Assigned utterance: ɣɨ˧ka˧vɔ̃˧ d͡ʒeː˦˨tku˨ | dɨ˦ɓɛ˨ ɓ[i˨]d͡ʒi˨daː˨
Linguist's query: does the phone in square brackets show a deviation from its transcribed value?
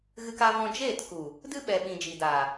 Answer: yes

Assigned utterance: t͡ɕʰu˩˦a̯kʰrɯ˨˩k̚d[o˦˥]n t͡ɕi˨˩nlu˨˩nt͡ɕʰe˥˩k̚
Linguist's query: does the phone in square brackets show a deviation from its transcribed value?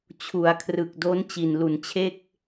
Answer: no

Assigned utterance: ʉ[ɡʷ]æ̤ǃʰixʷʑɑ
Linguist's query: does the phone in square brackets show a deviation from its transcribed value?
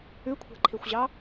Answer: yes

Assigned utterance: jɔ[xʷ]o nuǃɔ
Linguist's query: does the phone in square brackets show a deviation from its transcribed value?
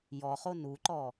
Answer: yes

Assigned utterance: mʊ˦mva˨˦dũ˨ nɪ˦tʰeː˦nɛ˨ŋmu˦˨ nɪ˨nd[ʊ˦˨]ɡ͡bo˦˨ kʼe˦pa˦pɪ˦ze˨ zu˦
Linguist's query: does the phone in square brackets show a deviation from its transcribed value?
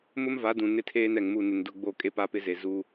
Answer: no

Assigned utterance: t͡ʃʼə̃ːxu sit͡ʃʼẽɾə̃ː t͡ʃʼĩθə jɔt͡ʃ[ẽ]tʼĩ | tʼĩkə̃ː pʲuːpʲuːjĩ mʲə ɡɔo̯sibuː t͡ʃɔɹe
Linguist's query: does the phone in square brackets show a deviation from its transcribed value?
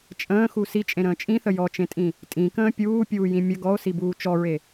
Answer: no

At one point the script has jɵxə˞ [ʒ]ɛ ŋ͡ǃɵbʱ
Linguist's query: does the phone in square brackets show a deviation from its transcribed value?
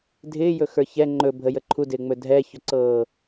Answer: yes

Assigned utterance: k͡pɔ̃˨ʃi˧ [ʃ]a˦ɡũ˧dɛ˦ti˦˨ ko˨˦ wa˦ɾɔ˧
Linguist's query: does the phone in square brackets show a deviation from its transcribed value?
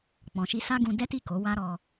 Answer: yes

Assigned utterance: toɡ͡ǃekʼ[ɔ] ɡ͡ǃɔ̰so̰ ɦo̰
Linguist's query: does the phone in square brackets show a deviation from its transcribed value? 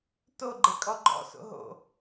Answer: no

